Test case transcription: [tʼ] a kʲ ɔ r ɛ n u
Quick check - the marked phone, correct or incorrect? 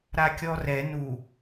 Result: incorrect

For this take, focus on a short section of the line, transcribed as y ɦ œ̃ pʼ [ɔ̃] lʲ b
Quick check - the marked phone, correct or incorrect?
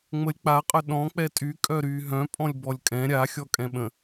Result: correct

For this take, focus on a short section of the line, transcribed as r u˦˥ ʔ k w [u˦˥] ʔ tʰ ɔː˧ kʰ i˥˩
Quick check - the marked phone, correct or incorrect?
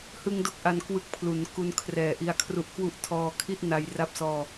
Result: correct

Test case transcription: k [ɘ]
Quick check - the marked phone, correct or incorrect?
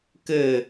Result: correct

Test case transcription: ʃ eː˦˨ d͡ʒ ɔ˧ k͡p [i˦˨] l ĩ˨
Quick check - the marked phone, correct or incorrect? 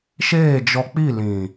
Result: correct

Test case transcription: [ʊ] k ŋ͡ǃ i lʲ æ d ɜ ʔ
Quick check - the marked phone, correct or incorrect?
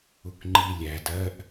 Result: correct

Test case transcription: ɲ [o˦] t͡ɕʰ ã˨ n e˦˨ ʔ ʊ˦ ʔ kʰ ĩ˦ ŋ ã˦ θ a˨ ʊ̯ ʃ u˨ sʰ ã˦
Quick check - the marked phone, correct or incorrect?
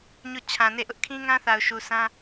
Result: incorrect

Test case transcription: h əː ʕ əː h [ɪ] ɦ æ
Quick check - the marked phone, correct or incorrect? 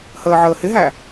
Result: correct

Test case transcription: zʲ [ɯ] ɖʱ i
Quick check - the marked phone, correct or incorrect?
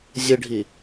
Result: correct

